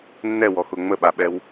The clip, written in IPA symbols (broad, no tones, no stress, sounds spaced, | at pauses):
nː ɛ w ɔ x ʊ ŋ͡m ə ɓ a ɓ ɛ w